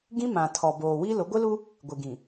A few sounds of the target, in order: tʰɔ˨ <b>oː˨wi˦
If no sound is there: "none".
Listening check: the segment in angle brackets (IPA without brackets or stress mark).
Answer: b